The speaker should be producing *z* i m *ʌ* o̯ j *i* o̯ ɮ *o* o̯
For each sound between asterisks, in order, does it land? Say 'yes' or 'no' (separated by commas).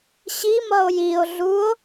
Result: no, yes, yes, no